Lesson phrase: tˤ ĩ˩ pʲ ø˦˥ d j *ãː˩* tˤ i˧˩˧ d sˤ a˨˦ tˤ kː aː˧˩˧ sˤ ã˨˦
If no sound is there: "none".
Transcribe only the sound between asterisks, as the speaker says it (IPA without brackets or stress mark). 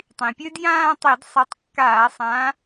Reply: ãː˥˧